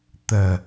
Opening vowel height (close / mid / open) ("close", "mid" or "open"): open